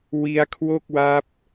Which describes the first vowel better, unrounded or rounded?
unrounded